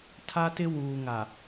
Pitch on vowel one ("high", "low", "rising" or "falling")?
high